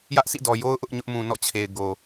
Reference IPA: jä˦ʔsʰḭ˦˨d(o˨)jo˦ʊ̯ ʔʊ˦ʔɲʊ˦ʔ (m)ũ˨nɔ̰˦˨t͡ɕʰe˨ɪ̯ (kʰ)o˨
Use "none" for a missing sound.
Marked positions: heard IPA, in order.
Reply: ɔ˨, m, ɡ

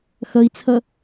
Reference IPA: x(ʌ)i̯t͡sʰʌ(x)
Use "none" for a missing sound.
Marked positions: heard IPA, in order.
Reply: ʌ, none

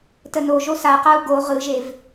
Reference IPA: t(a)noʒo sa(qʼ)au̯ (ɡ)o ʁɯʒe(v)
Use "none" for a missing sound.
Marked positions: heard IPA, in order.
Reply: ə, q, ɡ, v

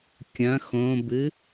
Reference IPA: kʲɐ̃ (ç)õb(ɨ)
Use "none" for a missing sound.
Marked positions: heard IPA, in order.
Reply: x, ɨ

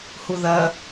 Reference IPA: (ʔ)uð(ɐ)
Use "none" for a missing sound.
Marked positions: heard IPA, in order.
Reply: h, ɐ

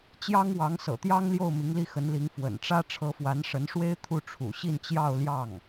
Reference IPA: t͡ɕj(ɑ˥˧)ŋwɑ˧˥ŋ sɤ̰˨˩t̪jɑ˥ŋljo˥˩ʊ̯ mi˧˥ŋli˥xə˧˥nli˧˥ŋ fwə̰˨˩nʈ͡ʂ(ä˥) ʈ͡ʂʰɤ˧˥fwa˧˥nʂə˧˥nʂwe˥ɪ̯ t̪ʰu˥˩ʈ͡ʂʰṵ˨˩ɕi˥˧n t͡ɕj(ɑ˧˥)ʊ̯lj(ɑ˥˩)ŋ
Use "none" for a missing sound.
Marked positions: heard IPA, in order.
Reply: ɑ˥, ä˥, ɑ˥˧, ɑ˥˩

